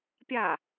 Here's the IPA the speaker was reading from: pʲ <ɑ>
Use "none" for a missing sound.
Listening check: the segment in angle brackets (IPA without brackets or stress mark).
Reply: a